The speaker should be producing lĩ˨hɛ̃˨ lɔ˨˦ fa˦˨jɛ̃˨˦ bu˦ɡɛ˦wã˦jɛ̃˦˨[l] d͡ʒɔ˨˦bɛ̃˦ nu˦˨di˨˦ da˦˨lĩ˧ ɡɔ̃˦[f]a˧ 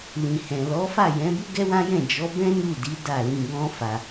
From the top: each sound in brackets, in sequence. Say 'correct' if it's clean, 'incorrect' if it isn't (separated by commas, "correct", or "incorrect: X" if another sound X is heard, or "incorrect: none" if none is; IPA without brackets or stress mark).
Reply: incorrect: none, correct